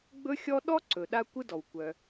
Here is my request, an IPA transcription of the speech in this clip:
ɡ͡b ɵ˦ xʲ ɔ˦ ɗ ɔ˥ ǀ ɵ˨ ɗ a˦ kʷ ɯ˦ d ɔ˩ w kʷ œ˨

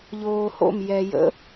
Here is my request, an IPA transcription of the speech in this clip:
ʎ oː h o̰ m j ɛ j ə̰

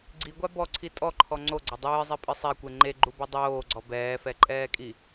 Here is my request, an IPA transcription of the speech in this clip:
ɡ͡ǀ i ɡʷ a b ɔ ǀʰ i tʼ ɔ ǃʰ ɔ ŋ͡ǀ o ɡ͡ǀ ɐ dˤ ɨː zˤ e pʼ ɨ sˤ ɛ kʷ e ŋ͡ǃ e ɡ͡ǃ u b i dˤ oː ɡ͡ǀ ɔ b ɛː f ɛ ǃʼ ɛː kʼ i

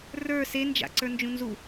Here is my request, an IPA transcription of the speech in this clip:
r ə˞ s e n d͡ʒ a̰ ǀ ə˞ n d͡ʒ ũ n z u

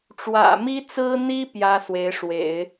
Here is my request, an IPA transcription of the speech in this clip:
ʈ͡ʂ w ä̰˨˩ m i˥ t͡s ɹ̩˥ n̪ i˥ p j ä˥ s w e˧˥ ɪ̯ ʂ w ḛ˨˩˦ ɪ̯

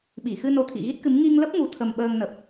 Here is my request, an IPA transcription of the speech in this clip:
ɓ i˧˩ x ɨ˧ n o˧ t̪ʰ ḭ˧˨ ɣ i˦˥ t̚ k ɨ˨˦ m ŋ i˧ ŋ l ə˦˥ p̚ ŋ u˨˩ t̪ʰ ə˨˩ m ɓ əː˧ ŋ n ə˨˩ p̚

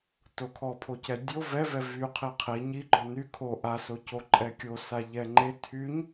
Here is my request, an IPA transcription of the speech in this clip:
t o kʰ ɔ pʰ o c ɛ dʲ o v ɛ v ɛ v y qʰ i qʰ i ɲ i ɡ͡ǃ ɔ n y kʰ o ʔ a s o c o ǃʼ ɛ kʲ o s a ʎ ɛ ŋ͡ǃ e tʰ y ɲ

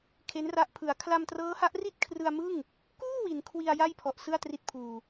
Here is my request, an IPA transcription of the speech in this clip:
kʰ e˦˥ n r a˦˥ ʔ pʰ ɯ˩˦ a̯ kʰ l a˧ m t r ɤː˦˥ h a˦˥ ʔ r i˥˩ t̚ kʰ r ɯ˧ a̯ m ɯ˥˩ ŋ | k uː˥˩ w i˩˦ n kʰ w i˧ a̯ j a˥˩ j pʰ ɔ˨˩ ʔ s ɯ˥˩ a̯ t r i˦˥ t̚ pʰ uː˨˩

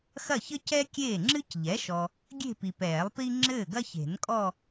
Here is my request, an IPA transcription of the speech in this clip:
x ɐ˥˩ ç ɘ˥ c ɛ˥ kʲ eː˥˩ ŋ͡ǁ ɨ˥ c ʎ ɛ˩˥ ʃ ɔ˨ | ɡʲ e̤˥˧ p i˨ p ɛː˨˩˦ lˠ p i˥ ŋ͡ǁ ɘː˥˩ ɡ ɐ˥ ç e̤˨˩˦ n kʼ ɔ˥˧

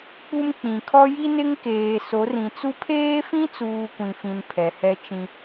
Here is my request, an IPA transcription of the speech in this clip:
k͡p u˦ m k͡p ĩ˨ kʰ ɔ˦ j i˦ n ɪ˦ ŋ k eː˨ s o˨˦ r ĩ˨ t͡s u˦ pʰ eː˦ f ĩ˦ t͡s uː˨ kʷ ĩ˨ f ĩ˨ n pʰ ɛ˨ h ɛ˦ t͡ʃ ĩ˦

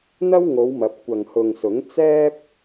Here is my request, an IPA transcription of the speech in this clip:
n̪ ɐ˥ w ŋ o˨˧ w m ɐ˨˥ p̚ kʷ ɐ˨ ŋ h ʊ˨ ŋ s ʊ˨˥ ŋ t͡s ɛː˥ p̚

